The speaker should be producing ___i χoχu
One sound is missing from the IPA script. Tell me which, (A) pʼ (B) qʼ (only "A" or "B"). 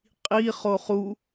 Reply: B